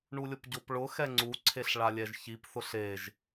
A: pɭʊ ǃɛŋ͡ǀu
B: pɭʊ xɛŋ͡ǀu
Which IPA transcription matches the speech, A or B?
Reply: B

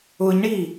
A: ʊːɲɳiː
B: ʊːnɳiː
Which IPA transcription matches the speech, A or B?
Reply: A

